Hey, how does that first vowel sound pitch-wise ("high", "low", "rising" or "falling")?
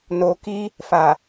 low